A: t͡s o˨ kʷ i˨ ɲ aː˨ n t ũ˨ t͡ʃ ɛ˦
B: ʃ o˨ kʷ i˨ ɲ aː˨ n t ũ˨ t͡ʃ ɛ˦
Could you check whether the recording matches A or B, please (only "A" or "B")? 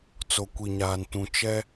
A